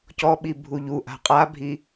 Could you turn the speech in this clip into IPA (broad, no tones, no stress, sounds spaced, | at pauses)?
c ɔ ɓ i bʱ u ʎ u ʔ a̤ qʼ a bʱ i